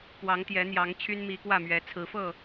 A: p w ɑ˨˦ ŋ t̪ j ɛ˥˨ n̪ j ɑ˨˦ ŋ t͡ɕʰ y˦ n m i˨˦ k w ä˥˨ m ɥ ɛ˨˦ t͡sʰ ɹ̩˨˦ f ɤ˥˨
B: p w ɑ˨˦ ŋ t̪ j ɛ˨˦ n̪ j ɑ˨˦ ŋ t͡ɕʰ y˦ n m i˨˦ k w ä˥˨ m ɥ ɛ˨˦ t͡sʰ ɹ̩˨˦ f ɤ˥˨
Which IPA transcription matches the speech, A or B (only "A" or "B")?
B